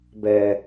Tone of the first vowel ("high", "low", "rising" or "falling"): low